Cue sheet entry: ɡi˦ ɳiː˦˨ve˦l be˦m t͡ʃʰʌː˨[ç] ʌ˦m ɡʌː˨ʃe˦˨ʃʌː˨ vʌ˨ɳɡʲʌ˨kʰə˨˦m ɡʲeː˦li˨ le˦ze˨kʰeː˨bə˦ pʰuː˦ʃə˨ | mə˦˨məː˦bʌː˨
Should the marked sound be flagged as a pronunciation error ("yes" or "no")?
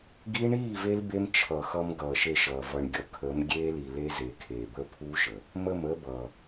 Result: yes